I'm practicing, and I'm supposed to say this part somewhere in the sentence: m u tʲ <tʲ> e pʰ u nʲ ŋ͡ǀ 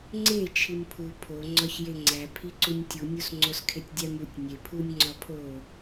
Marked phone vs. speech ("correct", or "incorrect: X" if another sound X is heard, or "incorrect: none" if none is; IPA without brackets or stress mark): incorrect: nʲ